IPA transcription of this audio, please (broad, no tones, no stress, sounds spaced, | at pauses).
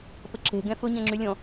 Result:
p ə ǁ e̤ ɡ ɛ̃ f ʊ ɲ ɛ̃ ŋ͡ǁ y lʲ ɔ̃